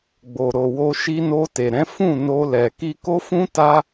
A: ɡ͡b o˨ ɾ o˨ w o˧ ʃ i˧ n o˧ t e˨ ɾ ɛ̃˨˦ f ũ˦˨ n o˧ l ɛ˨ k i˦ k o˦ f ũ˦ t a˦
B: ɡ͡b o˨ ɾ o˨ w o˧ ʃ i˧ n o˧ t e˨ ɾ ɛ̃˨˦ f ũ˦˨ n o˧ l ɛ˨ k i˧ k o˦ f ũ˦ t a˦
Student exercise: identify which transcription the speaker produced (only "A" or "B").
B